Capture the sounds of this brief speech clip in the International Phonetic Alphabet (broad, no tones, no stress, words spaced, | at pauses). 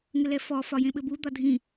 ŋɘlɛfɔ fɒjẽɓɘbu d̪ɒdʱĩ